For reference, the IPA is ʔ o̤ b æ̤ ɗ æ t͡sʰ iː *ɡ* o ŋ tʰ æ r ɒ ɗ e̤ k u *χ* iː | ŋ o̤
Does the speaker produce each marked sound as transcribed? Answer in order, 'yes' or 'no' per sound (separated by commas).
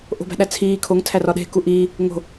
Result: no, no